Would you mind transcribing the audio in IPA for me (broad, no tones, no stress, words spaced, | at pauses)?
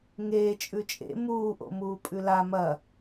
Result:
ŋeː t͡ʃʼʉt͡ʃʼḛ muːʔo̰ muːpʼʉla mɐ